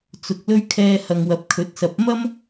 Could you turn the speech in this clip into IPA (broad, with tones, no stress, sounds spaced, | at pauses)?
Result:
t͡s ʊ˨ k̚ l ɵ˥ ɥ kʰ ɛː˧ h ɐ˨ ŋ w ɐ˨˥ p̚ kʰ ɵ˨˥ t̚ s ɐ˨˥ p̚ m ɐ˥ m